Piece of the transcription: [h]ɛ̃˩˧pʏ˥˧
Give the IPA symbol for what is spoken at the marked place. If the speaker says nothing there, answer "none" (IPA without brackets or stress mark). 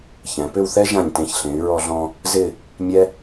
ç